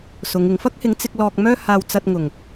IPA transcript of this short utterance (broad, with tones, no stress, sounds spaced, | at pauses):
s ʊ˨˧ ŋ ɪ˨˧ ŋ f ɐ˥ k̚ h ɪ˨˥ ŋ t͡s ɪ˧ k̚ l ɔː˧ k̚ m œː˥ h aː˧ w t͡s ɐ˧ t̚ ŋ ʊ˨˩ ŋ